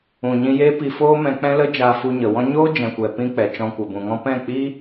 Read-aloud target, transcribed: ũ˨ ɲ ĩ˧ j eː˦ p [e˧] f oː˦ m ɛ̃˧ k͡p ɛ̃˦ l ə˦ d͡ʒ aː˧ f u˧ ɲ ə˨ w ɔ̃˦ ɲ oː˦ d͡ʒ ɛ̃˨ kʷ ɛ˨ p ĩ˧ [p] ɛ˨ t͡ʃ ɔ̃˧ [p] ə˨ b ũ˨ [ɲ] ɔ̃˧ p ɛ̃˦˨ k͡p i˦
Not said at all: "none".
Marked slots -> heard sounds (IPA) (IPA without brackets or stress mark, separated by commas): i˧, k͡p, kʷ, ŋ